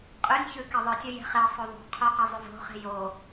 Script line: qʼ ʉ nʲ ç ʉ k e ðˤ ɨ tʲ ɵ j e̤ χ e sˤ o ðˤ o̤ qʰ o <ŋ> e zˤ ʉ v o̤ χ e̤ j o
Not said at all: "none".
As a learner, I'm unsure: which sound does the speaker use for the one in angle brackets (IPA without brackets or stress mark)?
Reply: q